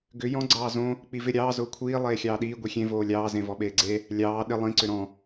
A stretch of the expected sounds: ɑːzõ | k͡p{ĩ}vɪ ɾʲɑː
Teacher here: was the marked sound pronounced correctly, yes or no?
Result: no